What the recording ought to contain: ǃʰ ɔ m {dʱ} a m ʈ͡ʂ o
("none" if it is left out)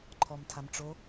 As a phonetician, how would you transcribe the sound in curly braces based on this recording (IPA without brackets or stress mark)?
tʰ